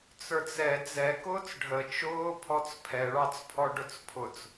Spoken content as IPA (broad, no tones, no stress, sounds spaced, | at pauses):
t͡s ə˞ t͡s ɛ d͡z ɛ k ʊː t͡s ɖʱ ə t͡ʃ ʊː pʰ ɔ t͡s pʰ ɛ ɭ ɑ t͡s pʰ ɔ ɖ ʊ t͡s pʰ ʊ t͡s